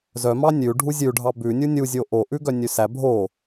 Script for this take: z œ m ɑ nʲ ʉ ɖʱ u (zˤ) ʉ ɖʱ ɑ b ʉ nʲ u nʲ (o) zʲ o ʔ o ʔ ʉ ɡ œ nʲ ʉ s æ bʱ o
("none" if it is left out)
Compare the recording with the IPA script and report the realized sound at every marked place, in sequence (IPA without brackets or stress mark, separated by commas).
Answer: zʲ, u